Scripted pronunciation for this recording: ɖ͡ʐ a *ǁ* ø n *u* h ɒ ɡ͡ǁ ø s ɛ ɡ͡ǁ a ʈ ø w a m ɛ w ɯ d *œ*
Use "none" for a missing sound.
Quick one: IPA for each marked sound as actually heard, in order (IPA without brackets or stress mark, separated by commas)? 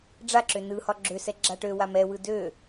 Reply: ǁ, ɯ, ø